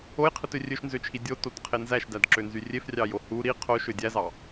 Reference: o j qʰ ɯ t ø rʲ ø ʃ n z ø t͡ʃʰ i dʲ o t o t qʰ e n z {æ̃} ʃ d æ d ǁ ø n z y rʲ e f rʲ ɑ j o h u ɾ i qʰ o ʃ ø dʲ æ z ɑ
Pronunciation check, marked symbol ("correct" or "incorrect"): incorrect